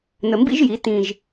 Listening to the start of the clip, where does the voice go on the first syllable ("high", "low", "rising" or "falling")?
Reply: low